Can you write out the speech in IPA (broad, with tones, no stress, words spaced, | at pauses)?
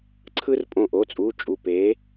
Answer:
ǀʰɯ˦r pʼõ˧˩ʔo˩˧˩t͡sʼu˩˧˩ t͡ʃʼu˧˩pe˨˥